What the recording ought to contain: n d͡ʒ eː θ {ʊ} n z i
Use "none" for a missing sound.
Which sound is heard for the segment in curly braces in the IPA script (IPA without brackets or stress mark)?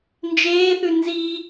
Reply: ʉ